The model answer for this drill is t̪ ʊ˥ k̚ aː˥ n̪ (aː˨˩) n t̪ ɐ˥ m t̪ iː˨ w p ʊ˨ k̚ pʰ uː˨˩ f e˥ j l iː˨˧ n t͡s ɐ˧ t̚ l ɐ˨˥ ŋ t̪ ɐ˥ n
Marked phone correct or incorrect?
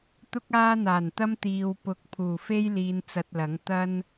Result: correct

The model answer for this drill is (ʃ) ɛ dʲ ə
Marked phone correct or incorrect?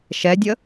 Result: correct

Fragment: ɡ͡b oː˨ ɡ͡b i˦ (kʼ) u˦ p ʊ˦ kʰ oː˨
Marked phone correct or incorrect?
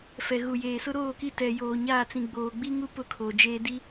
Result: incorrect: ŋ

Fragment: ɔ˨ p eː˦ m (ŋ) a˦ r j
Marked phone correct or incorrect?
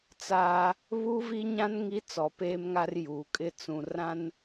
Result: correct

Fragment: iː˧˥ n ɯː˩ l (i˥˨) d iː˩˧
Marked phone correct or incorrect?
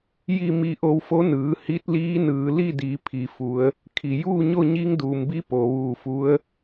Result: correct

